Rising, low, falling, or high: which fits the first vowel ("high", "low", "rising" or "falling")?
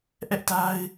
high